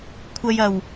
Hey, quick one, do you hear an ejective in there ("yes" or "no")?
no